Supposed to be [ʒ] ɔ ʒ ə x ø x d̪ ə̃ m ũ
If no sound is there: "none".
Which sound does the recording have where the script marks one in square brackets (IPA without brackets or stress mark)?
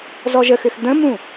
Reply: z